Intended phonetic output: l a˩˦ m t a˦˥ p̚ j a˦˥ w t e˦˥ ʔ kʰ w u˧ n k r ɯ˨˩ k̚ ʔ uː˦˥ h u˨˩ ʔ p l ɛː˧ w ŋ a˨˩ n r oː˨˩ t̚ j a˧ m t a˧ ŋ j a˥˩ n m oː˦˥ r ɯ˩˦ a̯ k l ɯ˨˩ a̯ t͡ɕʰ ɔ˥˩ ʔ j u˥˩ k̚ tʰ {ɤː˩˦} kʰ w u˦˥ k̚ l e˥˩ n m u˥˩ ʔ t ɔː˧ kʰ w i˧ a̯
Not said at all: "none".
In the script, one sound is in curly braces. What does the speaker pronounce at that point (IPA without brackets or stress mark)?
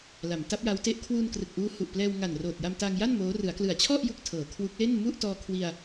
ɤː˩˦